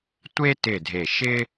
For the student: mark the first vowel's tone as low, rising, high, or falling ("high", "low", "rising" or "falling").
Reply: high